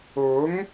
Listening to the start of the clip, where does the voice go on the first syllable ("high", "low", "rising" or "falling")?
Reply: rising